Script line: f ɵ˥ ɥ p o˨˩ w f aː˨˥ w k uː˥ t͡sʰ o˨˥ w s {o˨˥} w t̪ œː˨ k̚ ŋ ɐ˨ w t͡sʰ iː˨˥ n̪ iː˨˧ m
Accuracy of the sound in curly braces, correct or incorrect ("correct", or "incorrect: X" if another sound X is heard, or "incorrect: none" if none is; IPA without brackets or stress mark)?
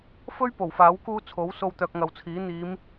incorrect: o˧